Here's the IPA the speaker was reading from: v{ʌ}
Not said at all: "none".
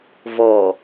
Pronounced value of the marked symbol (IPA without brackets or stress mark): ɔ